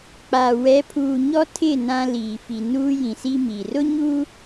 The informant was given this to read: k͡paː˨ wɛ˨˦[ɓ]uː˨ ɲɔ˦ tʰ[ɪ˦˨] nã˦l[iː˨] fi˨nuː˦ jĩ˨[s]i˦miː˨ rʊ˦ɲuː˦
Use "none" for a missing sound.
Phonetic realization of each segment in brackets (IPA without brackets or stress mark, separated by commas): pʰ, ɪ˦˨, iː˨, s